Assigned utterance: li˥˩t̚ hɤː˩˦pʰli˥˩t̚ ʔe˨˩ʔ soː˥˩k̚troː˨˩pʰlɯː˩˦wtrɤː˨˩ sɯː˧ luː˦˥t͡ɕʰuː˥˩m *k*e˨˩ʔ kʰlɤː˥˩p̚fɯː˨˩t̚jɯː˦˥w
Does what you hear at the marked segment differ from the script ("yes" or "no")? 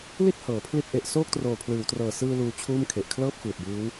yes